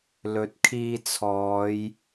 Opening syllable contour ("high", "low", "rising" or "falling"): rising